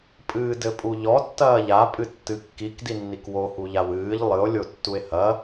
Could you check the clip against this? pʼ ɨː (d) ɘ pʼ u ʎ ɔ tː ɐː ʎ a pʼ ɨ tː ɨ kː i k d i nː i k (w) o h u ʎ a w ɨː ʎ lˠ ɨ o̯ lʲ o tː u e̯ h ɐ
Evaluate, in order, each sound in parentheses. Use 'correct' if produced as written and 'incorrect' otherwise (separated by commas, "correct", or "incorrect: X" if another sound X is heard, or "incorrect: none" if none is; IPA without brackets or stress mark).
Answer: correct, correct